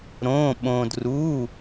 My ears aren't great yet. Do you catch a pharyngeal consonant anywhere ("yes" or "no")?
no